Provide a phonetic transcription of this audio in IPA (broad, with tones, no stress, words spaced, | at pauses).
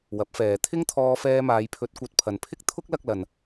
wɐ˨˥p̚fɛː˨ t̪ʰɪ˥ŋt̪ʰɔː˧fɛː˧maː˨˧j pʰɵ˧t̚kʷɐ˧t̚ pʰɐ˨npʰɪ˥k̚ t̪ʰʊ˥k̚lɐ˧k̚lɐ˨n